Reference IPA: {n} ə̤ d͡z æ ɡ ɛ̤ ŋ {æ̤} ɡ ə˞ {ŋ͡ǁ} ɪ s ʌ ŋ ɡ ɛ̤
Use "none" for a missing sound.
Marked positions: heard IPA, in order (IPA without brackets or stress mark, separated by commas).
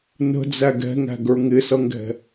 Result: n, æ̤, ŋ